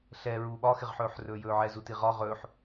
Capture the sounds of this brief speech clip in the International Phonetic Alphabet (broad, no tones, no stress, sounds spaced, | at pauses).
ɬ ɛ ɹ uː ɓ ɒ x ɪ ʁ ħ ɵː ħ r ɵː j ɵː ʕ ɛ z u t i ʁ ɒ ʁ ɵː ħ